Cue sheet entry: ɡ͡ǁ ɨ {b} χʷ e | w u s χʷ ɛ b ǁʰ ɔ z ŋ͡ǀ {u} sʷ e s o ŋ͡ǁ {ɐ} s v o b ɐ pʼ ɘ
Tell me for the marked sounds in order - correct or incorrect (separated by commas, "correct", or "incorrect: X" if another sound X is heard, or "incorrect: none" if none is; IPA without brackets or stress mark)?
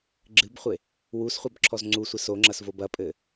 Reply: correct, correct, correct